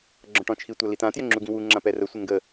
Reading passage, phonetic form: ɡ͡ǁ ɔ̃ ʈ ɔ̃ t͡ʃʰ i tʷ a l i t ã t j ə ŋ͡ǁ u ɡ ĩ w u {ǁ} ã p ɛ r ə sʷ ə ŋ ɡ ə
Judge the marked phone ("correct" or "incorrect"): incorrect